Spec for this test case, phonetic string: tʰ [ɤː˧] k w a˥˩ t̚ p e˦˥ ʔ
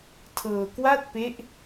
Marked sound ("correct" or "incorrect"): correct